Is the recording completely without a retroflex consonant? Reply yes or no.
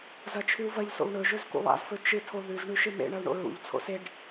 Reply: no